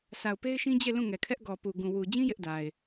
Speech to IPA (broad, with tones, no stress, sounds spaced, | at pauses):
s a˨ ʊ̯ p e˦ ɪ̯ ʃ ĩ˦ d͡ʑ e˦˨ l ũ˦˨ ŋ ɛ˨ kʰ ɛ˦ ʔ ɡ ɔ˨ p u˨ ɡ ũ˨ w u˨ d͡ʑ ĩ˦ j ɪ˦ ʔ d a˨ ɪ̯